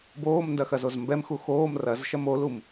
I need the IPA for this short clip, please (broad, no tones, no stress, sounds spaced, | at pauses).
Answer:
b oː m n d ɐ x ɐ z o z m b ɛ m x u x oː m r ɐ z ʃ ɐ m o l u m